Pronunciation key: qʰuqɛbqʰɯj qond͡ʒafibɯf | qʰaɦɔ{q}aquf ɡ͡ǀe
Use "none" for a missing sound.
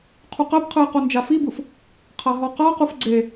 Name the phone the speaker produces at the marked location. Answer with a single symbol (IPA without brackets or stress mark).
q